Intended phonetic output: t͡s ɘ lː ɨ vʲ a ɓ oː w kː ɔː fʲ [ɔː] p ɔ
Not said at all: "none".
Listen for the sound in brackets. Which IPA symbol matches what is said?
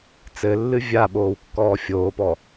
oː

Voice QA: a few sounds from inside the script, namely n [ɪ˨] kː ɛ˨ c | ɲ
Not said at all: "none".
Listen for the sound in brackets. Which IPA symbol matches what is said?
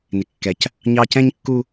ɪ˨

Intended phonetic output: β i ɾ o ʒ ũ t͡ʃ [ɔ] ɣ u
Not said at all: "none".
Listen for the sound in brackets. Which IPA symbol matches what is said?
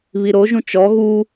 ɔ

